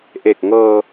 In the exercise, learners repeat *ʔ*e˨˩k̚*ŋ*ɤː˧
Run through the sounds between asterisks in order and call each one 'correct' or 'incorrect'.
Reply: correct, correct

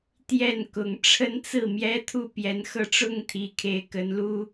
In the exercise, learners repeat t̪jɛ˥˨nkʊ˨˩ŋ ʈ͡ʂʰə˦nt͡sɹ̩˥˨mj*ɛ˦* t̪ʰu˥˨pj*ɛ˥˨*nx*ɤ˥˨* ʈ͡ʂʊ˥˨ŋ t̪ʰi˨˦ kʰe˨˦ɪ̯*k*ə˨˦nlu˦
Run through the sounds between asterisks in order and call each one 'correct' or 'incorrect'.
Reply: correct, incorrect, correct, correct

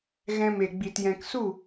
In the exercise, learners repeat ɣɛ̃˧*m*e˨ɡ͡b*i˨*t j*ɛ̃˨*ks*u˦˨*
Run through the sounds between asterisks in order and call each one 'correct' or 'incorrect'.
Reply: correct, correct, correct, correct

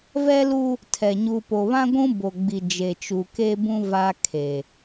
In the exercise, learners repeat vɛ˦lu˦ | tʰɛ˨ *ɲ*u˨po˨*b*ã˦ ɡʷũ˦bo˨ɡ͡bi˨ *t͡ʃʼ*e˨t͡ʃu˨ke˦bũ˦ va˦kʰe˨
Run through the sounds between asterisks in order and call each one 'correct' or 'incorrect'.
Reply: correct, incorrect, incorrect

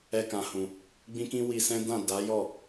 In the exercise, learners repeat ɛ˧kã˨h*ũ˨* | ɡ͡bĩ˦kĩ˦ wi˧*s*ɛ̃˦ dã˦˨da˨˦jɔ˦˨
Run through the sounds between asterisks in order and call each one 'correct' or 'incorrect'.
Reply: correct, correct

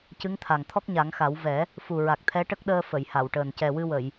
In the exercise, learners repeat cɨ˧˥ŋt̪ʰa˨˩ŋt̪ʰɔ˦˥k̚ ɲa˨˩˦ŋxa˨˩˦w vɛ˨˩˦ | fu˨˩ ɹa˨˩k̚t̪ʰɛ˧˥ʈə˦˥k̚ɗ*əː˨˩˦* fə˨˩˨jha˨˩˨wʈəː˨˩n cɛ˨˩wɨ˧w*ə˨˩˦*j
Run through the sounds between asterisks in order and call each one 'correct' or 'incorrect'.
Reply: incorrect, incorrect

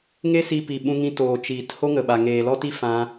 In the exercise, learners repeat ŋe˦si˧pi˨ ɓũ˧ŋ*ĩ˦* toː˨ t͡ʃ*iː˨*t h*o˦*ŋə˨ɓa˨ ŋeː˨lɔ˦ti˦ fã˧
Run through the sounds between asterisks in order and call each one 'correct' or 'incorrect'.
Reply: incorrect, correct, correct

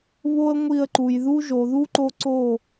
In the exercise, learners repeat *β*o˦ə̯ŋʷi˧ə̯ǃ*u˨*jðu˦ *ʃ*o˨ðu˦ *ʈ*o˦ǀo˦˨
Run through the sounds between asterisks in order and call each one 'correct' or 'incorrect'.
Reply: correct, correct, incorrect, incorrect

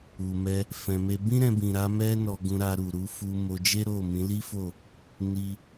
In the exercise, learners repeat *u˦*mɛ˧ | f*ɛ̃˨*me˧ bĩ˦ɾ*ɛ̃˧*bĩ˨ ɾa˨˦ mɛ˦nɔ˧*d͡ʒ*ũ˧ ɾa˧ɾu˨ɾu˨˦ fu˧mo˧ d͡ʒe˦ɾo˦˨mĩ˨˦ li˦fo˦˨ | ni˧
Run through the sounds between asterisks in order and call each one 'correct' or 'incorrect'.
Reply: incorrect, correct, correct, incorrect

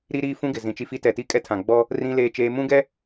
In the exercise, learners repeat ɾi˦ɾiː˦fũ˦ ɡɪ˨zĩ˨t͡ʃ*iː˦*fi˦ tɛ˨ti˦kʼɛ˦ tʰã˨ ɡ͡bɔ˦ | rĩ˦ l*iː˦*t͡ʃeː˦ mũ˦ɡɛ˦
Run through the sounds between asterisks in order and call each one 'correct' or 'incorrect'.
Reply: incorrect, incorrect

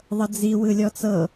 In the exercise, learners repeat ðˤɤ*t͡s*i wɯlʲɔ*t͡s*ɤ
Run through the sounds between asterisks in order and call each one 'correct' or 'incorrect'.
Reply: incorrect, correct

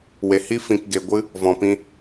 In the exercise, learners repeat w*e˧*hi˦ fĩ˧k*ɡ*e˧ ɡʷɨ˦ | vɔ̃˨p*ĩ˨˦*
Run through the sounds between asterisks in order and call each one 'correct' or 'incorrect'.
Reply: incorrect, correct, incorrect

